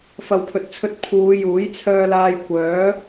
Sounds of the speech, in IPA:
fɐ˨wpʰɵ˨t̚t͡sʰɵ˧t̚ pʰuː˨˧ juː˨˥j t͡sʰœː˧laː˧j kʷœː˨˥

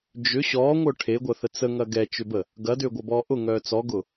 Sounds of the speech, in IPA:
d͡ʒʏ ɕɔːŋʷœ ʈʰeɡʷɐθə t͡səŋɐ ɡɛt͡ʃʏbə | ɡɐdʏːɡʷɐbɔː ʔʊŋœː t͡sɔɡʊ

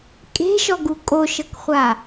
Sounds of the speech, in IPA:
kʼe̤ʃɔɡu kʼoʃɤkχʷa

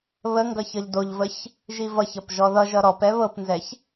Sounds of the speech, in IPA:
βə ŋɡʌçʌʎdoʎvəç | ʒivʌçʌp ʒɔðʌʒʌ ɾɔpɛ βɤpnzɛç

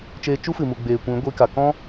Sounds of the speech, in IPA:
t͡ʃeː˧t͡ʃu˦fɨ˨mu˨ ɡ͡beː˨kʷĩ˨˦ ɡʷi˧ka˨ kɔ̃˦

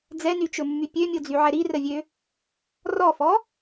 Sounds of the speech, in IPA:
d͡zɛnyt͡ʃɵmːy pʲømʲod͡zyʕɛ ɾirəvʲø | rɔfɔ

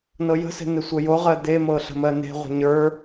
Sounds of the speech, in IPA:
nɤjə̤se̤ n̪ɪsʷəjoʁɜ d̪emɤ ɬə̤mɜne̤ʁʷə̤ ɲə˞

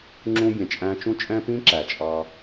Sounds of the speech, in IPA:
ŋ͡ǁũ˦bʲɛ̃˨t͡ʃʼæ̃˦ t͡ʃũ˦t͡ʃʼɛ̃˦pĩ˦ǁæ˨ t͡ʃʼɑ˦

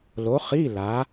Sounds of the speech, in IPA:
lo˨˥χi˧˥˧ la˨˥

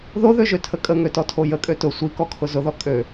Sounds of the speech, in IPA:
ðoðøʒøtʰə kʼəŋøtɔtʰo jəkʼø tʊ sʷikɔkʰʊ zʊðɔ kʼø

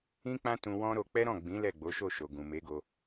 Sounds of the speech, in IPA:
ĩ˦k͡pã˦ tũ˧wɔ̃˦ɾo˧ k͡pɛ˦ɾɔ̃˦˨ɡ͡bĩ˨˦ lɛ˦˨ɡ͡bo˨˦ʃo˦˨ ʃo˨ɡũ˨me˨˦ɡo˧

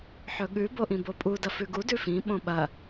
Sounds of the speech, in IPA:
ħɵɠʉ boʔĩbopʼu dɐfʉɡu dʉfĩ ɓõɓɐ

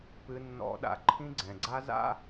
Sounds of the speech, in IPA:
pɨ˨nːɔ̰˨ɗa̰˨ ǃʰĩ˦ɡ͡ǀɛ̃˨ɡ͡ǀa˦za̰˦

